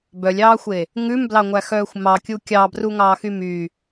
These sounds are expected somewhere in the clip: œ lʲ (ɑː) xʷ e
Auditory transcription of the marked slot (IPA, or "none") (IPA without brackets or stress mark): ɑː